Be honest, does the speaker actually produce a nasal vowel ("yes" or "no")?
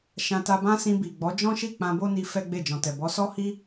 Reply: yes